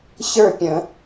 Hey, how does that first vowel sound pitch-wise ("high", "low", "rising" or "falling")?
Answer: falling